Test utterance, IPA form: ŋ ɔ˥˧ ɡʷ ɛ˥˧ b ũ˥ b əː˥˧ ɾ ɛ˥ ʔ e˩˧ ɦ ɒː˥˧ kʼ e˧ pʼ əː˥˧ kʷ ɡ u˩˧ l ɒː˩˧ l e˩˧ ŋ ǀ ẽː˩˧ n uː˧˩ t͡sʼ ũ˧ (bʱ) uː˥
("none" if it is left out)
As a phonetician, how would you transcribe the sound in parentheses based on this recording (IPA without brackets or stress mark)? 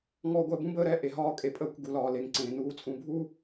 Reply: bʱ